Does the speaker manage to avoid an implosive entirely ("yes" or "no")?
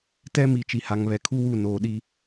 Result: no